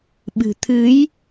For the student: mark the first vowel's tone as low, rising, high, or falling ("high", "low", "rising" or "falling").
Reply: low